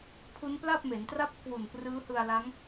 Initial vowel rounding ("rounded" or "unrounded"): rounded